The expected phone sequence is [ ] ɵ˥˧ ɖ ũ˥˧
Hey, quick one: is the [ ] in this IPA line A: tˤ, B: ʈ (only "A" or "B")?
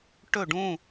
B